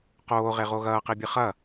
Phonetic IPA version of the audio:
q oː ʁ e ʁ o ɣ ɐː q i bʲ ɨ χ ɐ

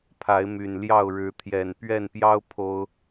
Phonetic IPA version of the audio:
pʰ a˨˦ ɪ̯ m y˨˩ n l j ɑ˥˨ ʊ̯ ɻ ɻ̩˨˦ t̪ʰ j ɛ˨˩ n p ɥ ɛ˥˨ n p j ɑ˦ ʊ̯ pʰ o˦ ʊ̯

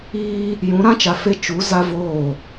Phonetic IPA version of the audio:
iː˦ | j ũ˨˦ ɾ ã˦ t͡ʃ a˨ f e˦ t͡ʃ u˨˦ z a˦ v oː˦˨

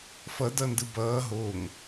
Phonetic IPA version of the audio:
f ʌ d ʌ n d ɯ b ʌː ɦ o ŋ

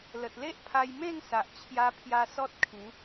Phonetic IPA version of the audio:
l ə˨ t̚ l e˦ ʔ pʰ a˧ j m ẽ˥˧ ŋ s a˨ ʔ t͡ɕʰ j a˧ pʰ j a˧ s ɔ˦ t̚ kʰ ĩ˨˦

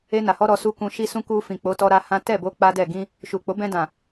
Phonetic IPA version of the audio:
e˧ n a˨ h ɔ˧ ɾ ɔ˧ s u˦ k ũ˧ ʃ i˦ s ũ˦ k u˧ f ĩ˨ k͡p o˨˦ t ɔ˧ ɾ a˧ h ã˦ t ɛ˦˨ b o˧ k͡p a˦ d ɛ˦˨ ɡ ĩ˧ | ʃ u˨ k͡p o˨˦ b ɛ̃˧ d ã˨

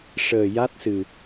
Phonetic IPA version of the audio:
ʂ əː˨˩ j a˦˥ t̚ s ɨ˨˩

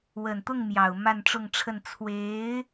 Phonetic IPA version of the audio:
w ə˨˩ n t̪ ʊ˥˩ ŋ m j ɑ˨˩ ʊ̯ m a˥˧ n ʈ͡ʂ ʊ˥˧ ŋ ʈ͡ʂʰ ə˥˩ n t͡sʰ w e˧˥ ɪ̯

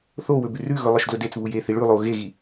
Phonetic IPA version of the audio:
θ o w ɵ b ʉ r ʉ ɣ ɵ lˠ ɐ ʃ d l ɵ d e t͡s β u j e θ i ɭ ʉ lˠ o ɣ e ɣ i

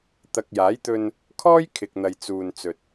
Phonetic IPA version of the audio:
t̪ ɐ˨ k̚ j aː˨˥ j t̪ ɵ˧ n | kʰ ɔː˥ j kʰ ɪ˨ k̚ n̪ ɐ˨ j t͡s uː˧ n t͡s ɵ˧ t̚

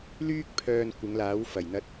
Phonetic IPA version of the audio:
l yː˥ k̚ pʰ œː˧ n kʷ ɪ˨˧ ŋ l aː˨˥ w f ɐ˨˩ j n̪ ɐ˧ t̚

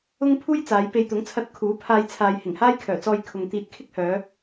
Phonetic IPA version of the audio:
ʊ˥ ŋ pʰ uː˥ j t͡s aː˨˧ j p e˧ j t̪ ʊ˨˥ ŋ t͡sʰ ɐ˧ t̚ kʰ uː˨˥ pʰ aː˧ j t͡sʰ aː˨ j h ɪ˨˩ ŋ h aː˥ j kʰ œː˨˩ t͡s ɔː˧ j kʰ ʊ˨ ŋ t̪ iː˧ t̚ kʰ ɪ˥ k̚ h œː˨˧

